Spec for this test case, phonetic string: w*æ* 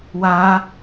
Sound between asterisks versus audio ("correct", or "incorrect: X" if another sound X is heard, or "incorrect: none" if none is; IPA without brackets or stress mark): incorrect: a